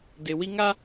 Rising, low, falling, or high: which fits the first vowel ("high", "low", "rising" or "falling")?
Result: low